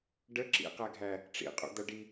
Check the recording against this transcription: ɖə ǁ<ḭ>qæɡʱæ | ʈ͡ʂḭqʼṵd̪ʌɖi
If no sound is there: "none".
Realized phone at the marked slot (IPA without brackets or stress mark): ḭ